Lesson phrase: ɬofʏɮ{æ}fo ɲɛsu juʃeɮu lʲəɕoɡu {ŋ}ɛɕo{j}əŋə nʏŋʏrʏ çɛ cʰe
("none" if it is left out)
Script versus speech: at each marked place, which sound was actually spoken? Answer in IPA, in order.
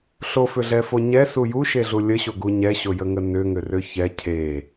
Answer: ɛ, ɲ, j

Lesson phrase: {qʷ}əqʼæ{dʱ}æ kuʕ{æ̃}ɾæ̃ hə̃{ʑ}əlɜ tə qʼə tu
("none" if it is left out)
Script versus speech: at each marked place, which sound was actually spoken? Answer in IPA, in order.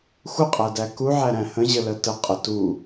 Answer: xʷ, d, æ, ʑ

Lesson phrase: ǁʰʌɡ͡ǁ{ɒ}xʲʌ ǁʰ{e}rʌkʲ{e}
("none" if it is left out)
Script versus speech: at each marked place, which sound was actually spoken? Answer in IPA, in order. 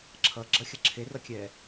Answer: ʌ, e, ɛ

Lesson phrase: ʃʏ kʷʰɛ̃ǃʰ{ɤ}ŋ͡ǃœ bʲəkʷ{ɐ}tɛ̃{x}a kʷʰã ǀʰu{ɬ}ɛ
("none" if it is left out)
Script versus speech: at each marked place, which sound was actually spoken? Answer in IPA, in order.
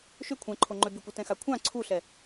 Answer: o, ɐ, x, ɬ

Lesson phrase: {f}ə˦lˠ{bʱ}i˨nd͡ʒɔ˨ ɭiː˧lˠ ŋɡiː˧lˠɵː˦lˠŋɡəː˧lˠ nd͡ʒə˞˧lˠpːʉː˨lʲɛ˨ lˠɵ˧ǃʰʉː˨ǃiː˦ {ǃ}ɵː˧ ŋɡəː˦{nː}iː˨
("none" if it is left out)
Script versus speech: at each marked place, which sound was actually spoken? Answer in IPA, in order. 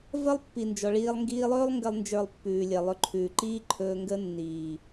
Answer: v, pː, ǃʰ, nː

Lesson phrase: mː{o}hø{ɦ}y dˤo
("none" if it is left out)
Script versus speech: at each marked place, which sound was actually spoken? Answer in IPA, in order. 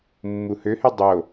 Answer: u, h

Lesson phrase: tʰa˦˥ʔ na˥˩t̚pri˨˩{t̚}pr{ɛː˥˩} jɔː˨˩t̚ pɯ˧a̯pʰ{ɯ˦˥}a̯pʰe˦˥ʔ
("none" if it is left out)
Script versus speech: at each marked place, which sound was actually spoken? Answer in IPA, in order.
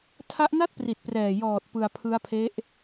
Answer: t̚, ɛː˨˩, ɯ˦˥

